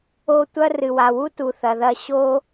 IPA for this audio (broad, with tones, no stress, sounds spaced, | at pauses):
o˦ tʷ ɐ˥ r ɨ˨ w a˨ w u˥ t u˨ θ ɐ˨ ð ɐ˦ ɕ o˦